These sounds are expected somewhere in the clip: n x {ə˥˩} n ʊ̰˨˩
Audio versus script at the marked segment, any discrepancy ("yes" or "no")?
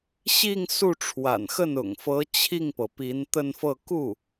no